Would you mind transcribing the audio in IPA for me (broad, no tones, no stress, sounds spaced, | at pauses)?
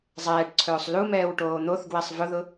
zˤ ɛː ʈ ǀʰ ɵː sˤ l u m ɛː w ʈ oː n̪ o θ ɡ w ɛ sˤ v ʊ ð ʊ